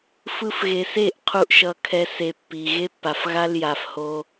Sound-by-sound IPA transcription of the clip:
f ɯ˧ f ɣ e˨ s e˦˨ ʔ qʰ u˦ ʔ ʃ ʌ˧ kʰ ɛ˦ s e˧ pː i˨ ɣ e˦ pː a˨ f ɣ a˦ l j a˨ f h o˧

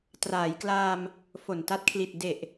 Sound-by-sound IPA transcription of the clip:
t r aː˩˦ j k l aː˧ m | f o˨˩ n t a˦˥ t̚ kʰ l i˨˩ t̚ d e˨˩ ʔ

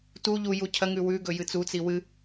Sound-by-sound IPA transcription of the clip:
t u ʎ u j u cʰ ɐ ŋ ʉ w ʉ ɡ ɵ j ɨ t͡s u t͡s i w ɨ

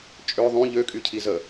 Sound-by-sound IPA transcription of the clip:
t͡ʃʼ ø ðˤ ũ ʎ ø kʼ y cʰ i z ə

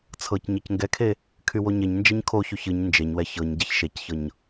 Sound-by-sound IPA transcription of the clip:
t͡sʰ ɤ c ɲ ɤ c ŋ ɡ ɛ kʰ e | kʰ y w o ɲ e ɲ n d͡ʒ ɛ ɲ kʰ o ç y ç ɨ ɲ n d͡ʒ e ɲ w ɛ ç ɤ ɲ ɟ e ç ʃ e c ç ɤ ɲ

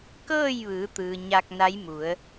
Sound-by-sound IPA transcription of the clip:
k ɤː˥˨ j ʋ ɯː˩˧ t̪ ɯː˩ ɲ a˧ k̚ n a˧˥ j m u˩˧ ə̯

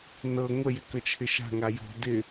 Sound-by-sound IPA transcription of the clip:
n ɤ ŋʷ ə j ɪ k ə t͡ʃʰ ɪ ʃ a̤ ŋ a j ɔ̤ d ɪ

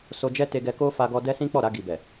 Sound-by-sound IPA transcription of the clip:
s o˧ d͡ʒ ɛ˦ t e˧ ɡ ɛ˧ k o˦ f a˧ ɡ ɔ˧ d ɛ˦ s ĩ˦ k͡p ɔ˦˨ ɾ a˧ ɡ i˨ b ɛ˨

